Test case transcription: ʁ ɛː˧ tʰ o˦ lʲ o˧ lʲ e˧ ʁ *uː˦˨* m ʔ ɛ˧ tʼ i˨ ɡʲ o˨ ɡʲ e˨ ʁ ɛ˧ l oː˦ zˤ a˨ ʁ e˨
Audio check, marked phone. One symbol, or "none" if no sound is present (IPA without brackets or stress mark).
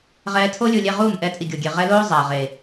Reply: uː˦˨